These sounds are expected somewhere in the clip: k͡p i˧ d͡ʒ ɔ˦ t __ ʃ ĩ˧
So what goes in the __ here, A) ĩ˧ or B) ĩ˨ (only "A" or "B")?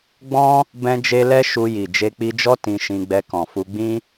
A